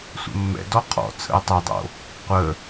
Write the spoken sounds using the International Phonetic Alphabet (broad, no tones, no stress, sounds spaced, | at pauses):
sʷ ə̰ mː ɛ̰ d ɔ qʰ ɔ̰ t͡sʰ ə̰ ɪ̯ tˤ ɛ dˤ o̰ | qʷ ə